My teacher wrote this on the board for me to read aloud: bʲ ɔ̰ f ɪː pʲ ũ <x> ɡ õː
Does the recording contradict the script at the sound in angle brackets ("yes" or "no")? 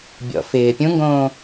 yes